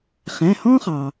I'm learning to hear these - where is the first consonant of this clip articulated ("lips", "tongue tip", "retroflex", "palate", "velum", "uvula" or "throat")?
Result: uvula